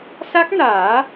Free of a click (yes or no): yes